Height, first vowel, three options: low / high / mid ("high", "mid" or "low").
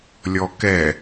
mid